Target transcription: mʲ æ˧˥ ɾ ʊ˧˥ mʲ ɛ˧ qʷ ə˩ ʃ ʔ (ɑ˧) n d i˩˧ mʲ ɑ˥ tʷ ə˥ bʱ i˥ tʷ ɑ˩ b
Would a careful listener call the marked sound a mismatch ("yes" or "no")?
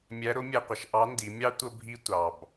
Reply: yes